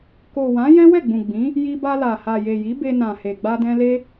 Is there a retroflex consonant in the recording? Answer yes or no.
no